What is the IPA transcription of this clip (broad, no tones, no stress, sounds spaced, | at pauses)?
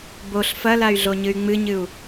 b o ɬ f ɐ l a y̯ ɮ o ɲ ɨ y̯ ŋ͡m ɨ ɲ ɨ u̯